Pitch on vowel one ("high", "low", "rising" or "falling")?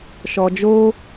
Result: low